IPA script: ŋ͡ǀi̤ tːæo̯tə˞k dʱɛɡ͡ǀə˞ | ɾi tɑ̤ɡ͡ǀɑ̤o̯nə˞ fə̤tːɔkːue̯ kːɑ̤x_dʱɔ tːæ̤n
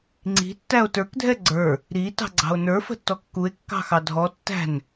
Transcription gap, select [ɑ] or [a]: ɑ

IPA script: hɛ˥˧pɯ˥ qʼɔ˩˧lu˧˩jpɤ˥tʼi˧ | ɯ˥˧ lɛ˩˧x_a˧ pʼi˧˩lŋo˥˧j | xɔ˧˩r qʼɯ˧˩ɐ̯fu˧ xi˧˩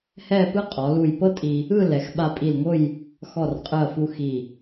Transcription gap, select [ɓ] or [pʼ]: ɓ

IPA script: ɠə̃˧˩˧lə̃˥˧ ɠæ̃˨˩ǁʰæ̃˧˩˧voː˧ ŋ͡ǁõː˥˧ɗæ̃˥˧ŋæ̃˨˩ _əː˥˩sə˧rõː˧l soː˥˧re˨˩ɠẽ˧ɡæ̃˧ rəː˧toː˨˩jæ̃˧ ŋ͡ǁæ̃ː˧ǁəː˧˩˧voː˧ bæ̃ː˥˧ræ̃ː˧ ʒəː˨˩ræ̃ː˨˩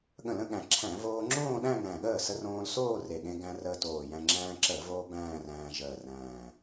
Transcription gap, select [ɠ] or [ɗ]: ɠ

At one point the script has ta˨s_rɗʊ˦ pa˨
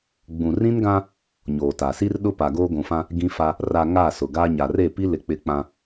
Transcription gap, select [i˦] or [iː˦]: i˦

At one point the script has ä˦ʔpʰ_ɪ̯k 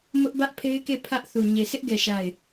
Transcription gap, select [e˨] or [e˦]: e˦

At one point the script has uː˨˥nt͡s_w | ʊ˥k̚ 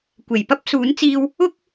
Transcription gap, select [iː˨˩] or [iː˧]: iː˧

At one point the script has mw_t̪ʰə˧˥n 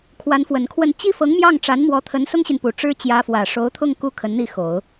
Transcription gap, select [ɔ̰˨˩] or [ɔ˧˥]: ɔ˧˥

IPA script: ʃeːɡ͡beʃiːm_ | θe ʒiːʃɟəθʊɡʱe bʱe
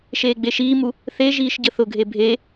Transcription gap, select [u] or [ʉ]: u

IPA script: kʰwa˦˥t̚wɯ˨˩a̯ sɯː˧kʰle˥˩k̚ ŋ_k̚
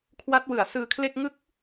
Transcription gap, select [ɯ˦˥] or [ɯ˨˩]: ɯ˦˥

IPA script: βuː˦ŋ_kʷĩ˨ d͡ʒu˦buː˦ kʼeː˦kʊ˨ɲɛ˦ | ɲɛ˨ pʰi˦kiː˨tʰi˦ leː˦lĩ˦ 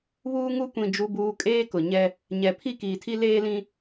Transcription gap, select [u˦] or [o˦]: u˦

